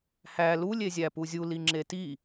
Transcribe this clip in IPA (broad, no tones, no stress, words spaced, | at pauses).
hæ lu lʲezʲæpuzʲu liŋ͡ǁeti